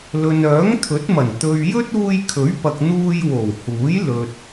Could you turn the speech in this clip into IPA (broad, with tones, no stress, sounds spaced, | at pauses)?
l ɵ˨ n œː˨˥ ŋ t̪ʰ ɵ˨˥ t̚ m ɐ˨˩ n t̪ ɵ˨ ɥ j ɵ˥ t̚ uː˧ j kʰ ɵ˨˥ ɥ p ɐ˨ k̚ n̪ uː˧ j w o˨˩ w h uː˨˥ j l ɵ˨ t̚